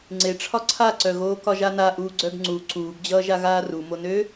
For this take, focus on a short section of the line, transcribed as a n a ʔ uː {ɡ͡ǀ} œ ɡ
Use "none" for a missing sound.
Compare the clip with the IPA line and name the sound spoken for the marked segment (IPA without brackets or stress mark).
ɡ͡ǀ